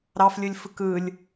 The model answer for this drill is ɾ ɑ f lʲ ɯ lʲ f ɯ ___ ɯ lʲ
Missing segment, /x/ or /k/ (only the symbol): k